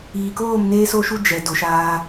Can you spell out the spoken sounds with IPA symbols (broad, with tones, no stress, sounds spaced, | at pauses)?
iː˨ k oː˦˨ m n eː˦ s o˦ ʃ u˦ d͡ʒ ɛ˨ d o˨ ʃ aː˦